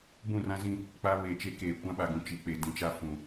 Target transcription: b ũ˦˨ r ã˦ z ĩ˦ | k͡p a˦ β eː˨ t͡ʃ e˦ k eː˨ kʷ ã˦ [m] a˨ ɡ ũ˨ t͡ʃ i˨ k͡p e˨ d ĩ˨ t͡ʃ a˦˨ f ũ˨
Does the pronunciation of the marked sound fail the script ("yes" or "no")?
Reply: yes